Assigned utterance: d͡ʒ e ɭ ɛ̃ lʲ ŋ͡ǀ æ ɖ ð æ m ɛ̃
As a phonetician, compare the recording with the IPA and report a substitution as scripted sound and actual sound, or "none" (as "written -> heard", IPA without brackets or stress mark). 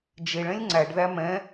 none